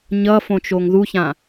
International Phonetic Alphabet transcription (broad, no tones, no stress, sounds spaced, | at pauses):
ɲ ʌ f õ t͡ʃ o ŋ ð u ç ã